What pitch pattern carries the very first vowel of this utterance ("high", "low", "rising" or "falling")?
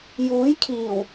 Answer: rising